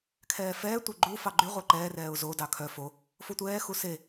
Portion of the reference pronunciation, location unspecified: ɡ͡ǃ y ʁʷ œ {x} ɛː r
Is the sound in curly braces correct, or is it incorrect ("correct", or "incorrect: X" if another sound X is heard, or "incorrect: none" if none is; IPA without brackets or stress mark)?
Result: incorrect: ǃ